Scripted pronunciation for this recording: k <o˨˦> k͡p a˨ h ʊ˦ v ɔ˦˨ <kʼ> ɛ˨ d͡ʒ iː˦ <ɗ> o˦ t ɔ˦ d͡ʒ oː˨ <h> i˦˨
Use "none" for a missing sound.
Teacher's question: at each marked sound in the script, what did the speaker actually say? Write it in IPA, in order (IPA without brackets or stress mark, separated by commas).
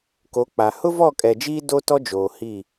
o˨˦, kʼ, d, h